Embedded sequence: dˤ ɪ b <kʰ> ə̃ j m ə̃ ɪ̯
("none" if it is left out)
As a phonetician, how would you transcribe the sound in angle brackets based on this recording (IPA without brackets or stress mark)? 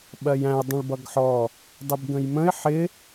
ɡ